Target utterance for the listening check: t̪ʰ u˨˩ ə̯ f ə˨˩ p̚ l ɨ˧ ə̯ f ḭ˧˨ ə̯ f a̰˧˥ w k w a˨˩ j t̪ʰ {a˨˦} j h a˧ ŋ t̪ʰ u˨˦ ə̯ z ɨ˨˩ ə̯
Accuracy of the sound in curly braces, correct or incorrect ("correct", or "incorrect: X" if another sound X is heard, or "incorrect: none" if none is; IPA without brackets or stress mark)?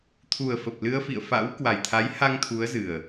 correct